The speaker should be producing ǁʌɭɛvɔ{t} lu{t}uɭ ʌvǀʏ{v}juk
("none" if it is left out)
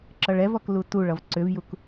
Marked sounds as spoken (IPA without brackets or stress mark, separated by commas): k, t, v